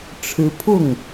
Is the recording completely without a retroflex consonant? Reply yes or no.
no